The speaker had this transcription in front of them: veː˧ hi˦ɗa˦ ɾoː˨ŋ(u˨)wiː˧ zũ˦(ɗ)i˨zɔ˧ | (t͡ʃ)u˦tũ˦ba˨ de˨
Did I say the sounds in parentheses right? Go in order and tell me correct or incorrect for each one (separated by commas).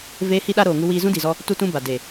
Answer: incorrect, incorrect, incorrect